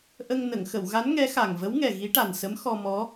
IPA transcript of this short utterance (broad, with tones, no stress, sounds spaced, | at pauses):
ʔ ə˧ ŋ n ə˨˩˨ ŋ x ə˨˩˨ w ɣ a˧˥ n ŋ ɛ˧˥ x a˨˩ ŋ v ə˧˥ w ŋ ɛ˨˩ ɣ i˧˥ ʈ a˨˩ n s ə˧˥ m x ɔ˧ m ɔ˧˥